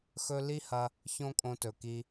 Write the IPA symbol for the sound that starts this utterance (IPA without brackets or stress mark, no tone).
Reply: x